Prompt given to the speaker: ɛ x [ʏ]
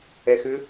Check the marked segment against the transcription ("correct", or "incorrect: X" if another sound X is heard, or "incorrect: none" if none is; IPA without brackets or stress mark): correct